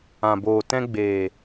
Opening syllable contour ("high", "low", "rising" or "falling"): low